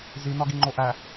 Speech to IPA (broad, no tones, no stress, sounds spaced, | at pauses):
z i n ɒ ɡ i ŋ͡ǃ o ʔ æ